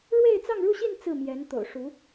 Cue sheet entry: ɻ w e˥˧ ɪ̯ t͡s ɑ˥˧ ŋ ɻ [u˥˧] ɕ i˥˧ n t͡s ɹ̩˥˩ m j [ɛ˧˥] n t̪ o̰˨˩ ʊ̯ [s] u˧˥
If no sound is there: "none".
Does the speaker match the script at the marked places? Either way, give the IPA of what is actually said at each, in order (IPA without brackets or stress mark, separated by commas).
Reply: u˥˧, ɛ˧˥, ʂ